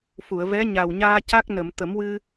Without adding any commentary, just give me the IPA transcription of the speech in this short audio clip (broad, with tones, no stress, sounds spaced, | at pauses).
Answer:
f u˨˩˨ ə̯ v ɛ˧˥ ɲ a˨˩ w ɲ aː˧ c a˦˥ k̚ n ə˨˩˨ m t̪ ə˨˩˦ m w ɨ˧